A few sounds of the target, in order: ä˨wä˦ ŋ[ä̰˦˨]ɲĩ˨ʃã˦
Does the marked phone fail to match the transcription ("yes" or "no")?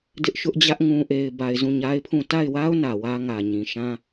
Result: yes